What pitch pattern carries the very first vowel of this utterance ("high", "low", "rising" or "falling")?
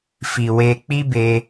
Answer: low